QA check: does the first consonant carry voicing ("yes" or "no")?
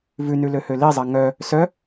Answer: yes